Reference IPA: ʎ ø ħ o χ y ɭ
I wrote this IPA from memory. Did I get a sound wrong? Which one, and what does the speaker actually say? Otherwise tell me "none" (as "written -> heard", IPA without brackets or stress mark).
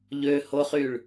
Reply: ħ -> h